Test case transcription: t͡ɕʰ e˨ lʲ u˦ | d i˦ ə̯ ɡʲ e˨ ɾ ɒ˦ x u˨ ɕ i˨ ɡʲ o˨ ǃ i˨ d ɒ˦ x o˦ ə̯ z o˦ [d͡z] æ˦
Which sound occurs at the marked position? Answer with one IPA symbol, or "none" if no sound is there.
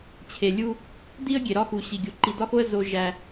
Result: ʒ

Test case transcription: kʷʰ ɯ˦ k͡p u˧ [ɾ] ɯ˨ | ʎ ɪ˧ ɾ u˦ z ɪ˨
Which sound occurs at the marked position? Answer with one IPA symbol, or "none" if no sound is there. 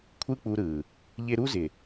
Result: ɾ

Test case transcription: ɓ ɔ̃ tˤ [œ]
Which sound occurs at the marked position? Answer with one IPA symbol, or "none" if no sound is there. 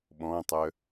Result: œ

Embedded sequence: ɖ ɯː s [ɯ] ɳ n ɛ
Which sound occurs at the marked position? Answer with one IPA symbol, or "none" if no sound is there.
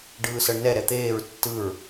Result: ɤ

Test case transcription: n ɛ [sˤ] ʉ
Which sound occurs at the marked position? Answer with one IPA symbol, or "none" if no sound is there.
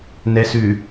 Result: s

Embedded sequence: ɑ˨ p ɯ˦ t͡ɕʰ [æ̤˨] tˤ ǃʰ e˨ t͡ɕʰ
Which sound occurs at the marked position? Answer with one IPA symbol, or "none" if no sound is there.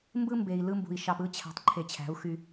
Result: æ̤˨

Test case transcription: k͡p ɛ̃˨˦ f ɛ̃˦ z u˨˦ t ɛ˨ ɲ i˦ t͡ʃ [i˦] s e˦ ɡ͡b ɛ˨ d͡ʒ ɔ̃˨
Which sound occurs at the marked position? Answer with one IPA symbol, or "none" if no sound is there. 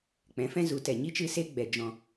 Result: ɨ˦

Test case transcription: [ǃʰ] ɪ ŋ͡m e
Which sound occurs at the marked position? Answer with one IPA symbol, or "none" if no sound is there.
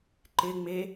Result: ǃ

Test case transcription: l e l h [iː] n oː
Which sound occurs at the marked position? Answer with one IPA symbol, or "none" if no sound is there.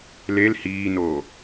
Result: iː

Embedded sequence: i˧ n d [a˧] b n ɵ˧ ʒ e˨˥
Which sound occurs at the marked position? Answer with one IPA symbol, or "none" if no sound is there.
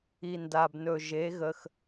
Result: a˧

